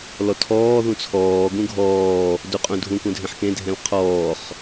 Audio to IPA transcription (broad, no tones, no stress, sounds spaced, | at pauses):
l ɔ tʰ ɔː ð ũ t͡sʰ ɔː ɡ ũ ɡʱ ɔː | d u qʼ ũ dʱ ũ k ũ dʱ ẽ ħ k ẽ dʱ ɛ̃ l qʰ ɔː χ